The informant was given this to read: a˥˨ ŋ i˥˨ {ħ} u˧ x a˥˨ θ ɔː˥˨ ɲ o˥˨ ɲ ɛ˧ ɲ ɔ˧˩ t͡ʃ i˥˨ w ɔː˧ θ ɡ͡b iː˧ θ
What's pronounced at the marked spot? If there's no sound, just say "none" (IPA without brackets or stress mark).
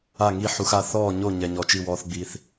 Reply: ħ